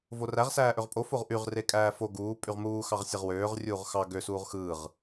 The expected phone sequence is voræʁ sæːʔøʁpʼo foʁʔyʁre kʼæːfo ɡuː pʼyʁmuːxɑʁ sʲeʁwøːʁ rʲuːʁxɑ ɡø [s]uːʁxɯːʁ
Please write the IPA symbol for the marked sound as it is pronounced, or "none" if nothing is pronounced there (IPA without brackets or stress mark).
s